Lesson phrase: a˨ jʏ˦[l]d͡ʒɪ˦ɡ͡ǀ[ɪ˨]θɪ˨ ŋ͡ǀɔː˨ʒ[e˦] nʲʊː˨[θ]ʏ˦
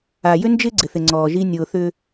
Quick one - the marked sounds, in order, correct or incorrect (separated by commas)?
incorrect, correct, incorrect, correct